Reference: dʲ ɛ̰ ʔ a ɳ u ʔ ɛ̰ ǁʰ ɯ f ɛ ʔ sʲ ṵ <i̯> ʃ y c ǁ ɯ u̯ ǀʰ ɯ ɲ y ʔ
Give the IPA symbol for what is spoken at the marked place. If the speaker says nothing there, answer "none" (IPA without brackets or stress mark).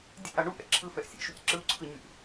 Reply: i̯